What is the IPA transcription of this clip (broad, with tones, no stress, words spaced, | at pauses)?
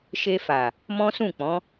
ʃe˧fa˨ | mɔ̃˦sũ˦˨k͡pɔ̃˨˦